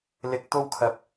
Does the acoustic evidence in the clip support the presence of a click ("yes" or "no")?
no